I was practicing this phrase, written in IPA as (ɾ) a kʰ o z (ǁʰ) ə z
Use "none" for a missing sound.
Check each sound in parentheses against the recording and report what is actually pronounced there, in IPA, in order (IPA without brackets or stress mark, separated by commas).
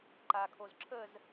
ǃ, ǁʰ